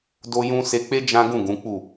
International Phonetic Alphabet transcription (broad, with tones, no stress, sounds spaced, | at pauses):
d o˦ j ũ˦ s e˧ k͡p e˦ d͡ʒ ã˦ ɡ ũ˦˨ ɡ ũ˨˦ k͡p u˦˨